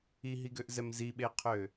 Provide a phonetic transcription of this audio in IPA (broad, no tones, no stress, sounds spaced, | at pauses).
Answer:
i ɦ i ɡ ø ʔ z ɛ m z i ɓ e qʰ ø